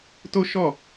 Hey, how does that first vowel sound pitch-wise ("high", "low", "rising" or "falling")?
high